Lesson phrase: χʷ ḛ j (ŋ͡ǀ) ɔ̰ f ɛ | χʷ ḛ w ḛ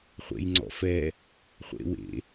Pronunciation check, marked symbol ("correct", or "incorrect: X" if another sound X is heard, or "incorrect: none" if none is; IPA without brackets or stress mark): correct